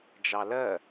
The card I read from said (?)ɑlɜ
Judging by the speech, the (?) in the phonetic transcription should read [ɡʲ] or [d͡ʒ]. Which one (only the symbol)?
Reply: d͡ʒ